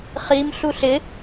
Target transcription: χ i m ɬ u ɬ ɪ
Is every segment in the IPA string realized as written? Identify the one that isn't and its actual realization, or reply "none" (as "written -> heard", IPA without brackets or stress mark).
none